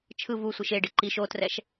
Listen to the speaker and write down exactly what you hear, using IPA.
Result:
t͡ʃʰ ɯ v u sʷ i ʃ e ɖ ɯ ǃ i ʃ o t r ɛ ʃ

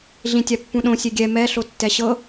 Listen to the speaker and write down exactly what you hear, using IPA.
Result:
ɮ ĩ tʲ a pː ũ ɗ õ sʲ e ɡʲ ɛ m ɛ ɬ o tː ɛ ɕ ɤ

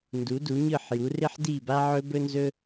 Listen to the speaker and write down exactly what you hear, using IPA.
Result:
n d u˨˦ d u˨˦ ɲ ɯ˦˨ ħ j u˨˦ r ɪ˦ ħ d i˦˨ b a˦ ʕ ɵ˦ b ɵ˦ n z ɵ˦

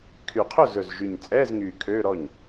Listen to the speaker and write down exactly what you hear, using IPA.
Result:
kʰ y˨˩ qʰ ɵ˥˩ z ɵ˨˩ z ʒ y˨˩ ɲ t͡sʼ ɛː˧˥˧ z ŋ yː˨˩ kʰ øː˧˥˧ ɾ ɔ˥˩ ɲ

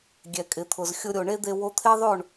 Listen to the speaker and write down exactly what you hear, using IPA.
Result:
ɡʲ ɛ˨ kʼ ɪ˨ t̪ʰ ʊ˨ z xʲ ʊ˧ ɾʲ o˨ ɳ e˦ d̪ e˧ w o˧ t̪ʰ e˦ ðˤ o˦˨ ɳ

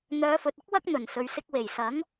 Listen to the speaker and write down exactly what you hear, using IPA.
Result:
n̪ œː˨˧ f ɵ˨ t̚ ɪ˥ k̚ w ɐ˥ k̚ n̪ ɵ˨˩ n s ɵ˨ ɥ s ɪ˧ k̚ w e˨˩ j s ɐ˨˥ ŋ

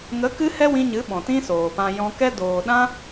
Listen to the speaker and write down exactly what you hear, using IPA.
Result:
ŋ ə˨˦ k ɨ˦ h ɛ˦ w ĩ˧ ɲ ɨ˨˦ ɓ ɔ̃˨ t ĩ˦ s oː˨ p ã˧ j ɔ̃˧ k ɛ˦ d oː˨ ɗ ã˦

